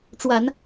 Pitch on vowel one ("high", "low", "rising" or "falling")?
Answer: low